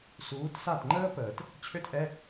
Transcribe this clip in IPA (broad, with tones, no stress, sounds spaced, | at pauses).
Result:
s uː˨˦ t s a˦˨ t ŋ͡ǃ əː˥ p əː˨˩˦ t | t͡ɕʰ ø˥ t ʔ ɛ˧˥˧